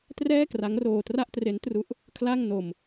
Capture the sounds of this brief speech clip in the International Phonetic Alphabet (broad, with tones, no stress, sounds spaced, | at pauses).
t r ɛː˥˩ k r a˦˥ ŋ r oː˧ t r a˥˩ ʔ t r e˦˥ n t r u˦˥ ʔ | kʰ l a˥˩ ŋ n o˧ m